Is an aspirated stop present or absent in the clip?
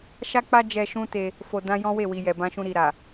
absent